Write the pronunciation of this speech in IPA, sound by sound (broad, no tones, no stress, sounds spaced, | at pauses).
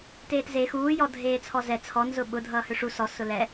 t eː t z e x uː j ɔ dʱ eː t͡sʰ ɔ z ɛ t͡sʰ ɔ n z ʊ ɓ ʊ dʱ ʌː h ø ʂ u s ɔ s ʊ l ɛ